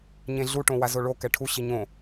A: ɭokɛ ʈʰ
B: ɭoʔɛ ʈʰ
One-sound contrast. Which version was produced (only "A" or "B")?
A